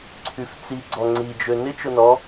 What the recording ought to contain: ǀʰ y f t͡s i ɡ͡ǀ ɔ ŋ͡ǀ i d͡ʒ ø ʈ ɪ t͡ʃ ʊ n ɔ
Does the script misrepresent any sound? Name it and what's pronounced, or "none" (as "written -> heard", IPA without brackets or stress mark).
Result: ʈ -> n